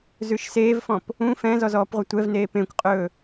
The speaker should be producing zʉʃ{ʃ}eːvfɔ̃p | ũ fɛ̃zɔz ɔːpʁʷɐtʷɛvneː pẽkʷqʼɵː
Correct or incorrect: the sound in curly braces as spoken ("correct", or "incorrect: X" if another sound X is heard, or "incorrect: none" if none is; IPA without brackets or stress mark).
incorrect: s